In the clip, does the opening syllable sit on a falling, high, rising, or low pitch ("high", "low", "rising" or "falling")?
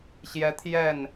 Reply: rising